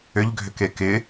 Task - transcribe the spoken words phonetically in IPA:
ʏ ʎ ɡʱ ʏ k e k ɪ

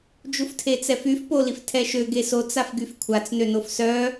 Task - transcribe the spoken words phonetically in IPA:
d͡ʒ u f tʰ e t͡s ɛ f y f p o l i f tʰ ɛ ʃ ø ɡ e s o t͡s a f ɡ y f kʷʰ a t͡s n ø n o f s œ

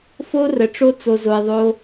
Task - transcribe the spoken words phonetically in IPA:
f o˦ r ə˨ ʈ͡ʂ o˦ t͡s o˧ z o˧ e̯ ðˤ o˦

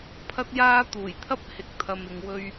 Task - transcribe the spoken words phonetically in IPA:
pʰ ɐ˥ t̚ j aː˥ t̪ uː˨˩ j t̪ʰ ɐ˥ p̚ h ɪ˨ k̚ t̪ʰ ɐ˨ m ɪ˨ ŋ w ɵ˧ ɥ

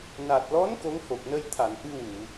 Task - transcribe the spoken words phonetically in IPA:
n a˨˩ t̚ l ɔ˧˥ n k o˧˥ ŋ h o˨˩ k̚ n ə˧ j t̪ʰ a˨˩˨ n ʔ ɨ˧ w u˨˩˨

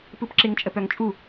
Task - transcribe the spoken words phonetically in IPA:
p ɯ p ǁ ɪ ŋ t͡ʃʼ ə p œ ŋ t͡ʃʼ u

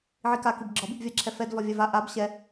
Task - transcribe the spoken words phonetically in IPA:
ʕ i k a k i b ɡ͡ǁ ɒ b i b vʲ a ǁʰ ɛ f ɛ d v ɒ vʲ a v a ʔ a b ɕ ɛ

